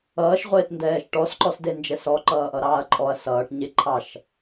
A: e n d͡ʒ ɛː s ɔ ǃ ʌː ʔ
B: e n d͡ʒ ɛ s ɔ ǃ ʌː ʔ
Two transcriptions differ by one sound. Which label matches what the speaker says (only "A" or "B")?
B